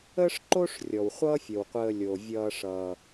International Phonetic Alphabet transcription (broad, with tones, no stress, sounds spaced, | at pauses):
ə˥ ʂ ǃ o˥ ʂ rʲ ɔ˩ w χʷ ʌ˦ fʲ ə˩ w qʷ əː˨ lʲ o˩ vʲ ʌː˨ ʂ ʌː˩